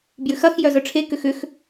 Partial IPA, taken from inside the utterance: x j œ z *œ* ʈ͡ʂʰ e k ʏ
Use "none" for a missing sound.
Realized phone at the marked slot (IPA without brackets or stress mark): œ